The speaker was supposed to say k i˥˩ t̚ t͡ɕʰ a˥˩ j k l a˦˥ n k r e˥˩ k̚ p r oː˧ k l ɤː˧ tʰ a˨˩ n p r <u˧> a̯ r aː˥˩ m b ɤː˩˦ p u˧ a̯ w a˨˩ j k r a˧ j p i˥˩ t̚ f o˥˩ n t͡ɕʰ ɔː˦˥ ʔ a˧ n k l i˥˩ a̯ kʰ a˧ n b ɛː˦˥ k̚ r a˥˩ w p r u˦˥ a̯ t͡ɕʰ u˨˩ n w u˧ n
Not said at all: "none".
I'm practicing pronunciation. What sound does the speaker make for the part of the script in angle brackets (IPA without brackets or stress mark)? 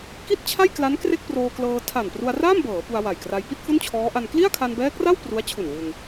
u˧